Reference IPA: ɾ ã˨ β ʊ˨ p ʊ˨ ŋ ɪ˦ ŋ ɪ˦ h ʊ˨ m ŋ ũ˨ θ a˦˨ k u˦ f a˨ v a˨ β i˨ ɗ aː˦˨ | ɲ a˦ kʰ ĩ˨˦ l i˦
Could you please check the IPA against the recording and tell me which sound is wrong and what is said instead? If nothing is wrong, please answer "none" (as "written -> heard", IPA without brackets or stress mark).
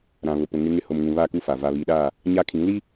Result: θ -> β